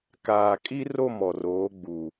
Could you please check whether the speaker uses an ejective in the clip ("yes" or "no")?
yes